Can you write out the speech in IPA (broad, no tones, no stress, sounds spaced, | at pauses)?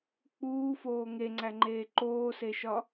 k͡p uː f oː ŋ e ŋ͡ǀ æ ŋ͡ǃ eː ǃ oː s e ʃ ɒ